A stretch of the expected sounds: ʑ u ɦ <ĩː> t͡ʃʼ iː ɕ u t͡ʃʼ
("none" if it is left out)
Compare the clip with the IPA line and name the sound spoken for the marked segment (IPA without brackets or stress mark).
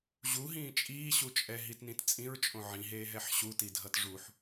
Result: ĩː